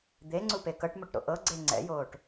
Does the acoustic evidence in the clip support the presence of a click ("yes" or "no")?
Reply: yes